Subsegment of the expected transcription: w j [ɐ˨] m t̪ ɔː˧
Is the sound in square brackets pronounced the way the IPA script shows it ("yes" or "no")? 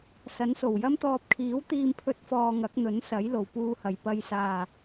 no